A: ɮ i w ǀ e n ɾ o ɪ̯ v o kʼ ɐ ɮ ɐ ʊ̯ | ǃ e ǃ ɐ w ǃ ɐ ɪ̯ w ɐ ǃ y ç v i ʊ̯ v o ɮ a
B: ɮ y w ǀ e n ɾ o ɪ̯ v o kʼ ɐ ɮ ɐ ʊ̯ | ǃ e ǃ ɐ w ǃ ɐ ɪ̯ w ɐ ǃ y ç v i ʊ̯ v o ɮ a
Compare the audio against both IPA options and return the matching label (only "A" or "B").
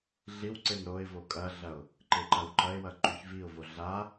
A